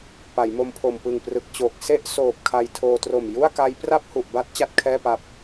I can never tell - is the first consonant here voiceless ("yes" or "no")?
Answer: yes